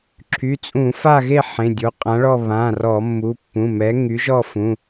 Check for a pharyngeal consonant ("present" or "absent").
present